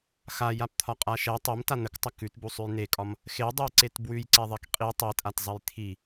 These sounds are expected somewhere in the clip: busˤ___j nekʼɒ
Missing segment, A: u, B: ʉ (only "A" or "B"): B